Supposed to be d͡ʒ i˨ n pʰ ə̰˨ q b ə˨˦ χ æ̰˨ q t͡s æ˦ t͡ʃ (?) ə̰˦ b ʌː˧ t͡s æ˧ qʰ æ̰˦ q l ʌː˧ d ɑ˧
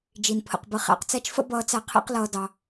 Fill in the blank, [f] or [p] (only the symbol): f